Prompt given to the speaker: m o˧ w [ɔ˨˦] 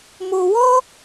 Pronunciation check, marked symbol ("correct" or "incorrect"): incorrect